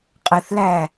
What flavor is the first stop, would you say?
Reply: ejective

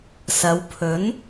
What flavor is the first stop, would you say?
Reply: aspirated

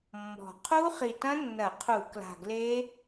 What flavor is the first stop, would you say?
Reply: aspirated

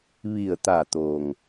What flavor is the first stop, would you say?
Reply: plain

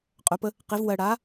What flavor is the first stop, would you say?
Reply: ejective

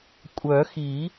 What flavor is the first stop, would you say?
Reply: ejective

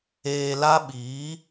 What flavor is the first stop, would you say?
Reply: implosive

